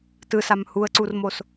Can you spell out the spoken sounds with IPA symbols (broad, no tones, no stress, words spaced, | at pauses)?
tɯsam huə̯ǀurmos